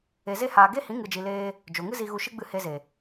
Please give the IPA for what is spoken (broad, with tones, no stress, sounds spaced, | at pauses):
e˨ z e˧ h aː˨ ɡ e˦ h ĩ˨˦ ŋ ɨ˨ d͡ʒ i˨ l eː˧ | d͡ʒ o˨ ŋ ɨ˦ z i˧ ɣ u˧ ʃ ɨ˦ ɡ͡b ɨ˧ h e˧ z e˨